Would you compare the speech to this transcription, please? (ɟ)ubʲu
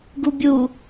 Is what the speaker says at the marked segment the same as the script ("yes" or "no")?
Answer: no